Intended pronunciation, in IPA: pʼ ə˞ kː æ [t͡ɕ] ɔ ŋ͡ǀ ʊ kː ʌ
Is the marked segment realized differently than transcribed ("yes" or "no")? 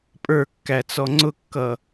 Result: yes